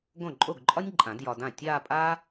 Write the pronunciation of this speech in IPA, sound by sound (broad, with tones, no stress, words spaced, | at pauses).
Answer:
ɡõ˥˩ǃʼo˥˩ɡǃʼɒ˥nʲǃʼã˨˩˦d jɒ˧dã˥˩ tʲaː˥˧pʼaː˥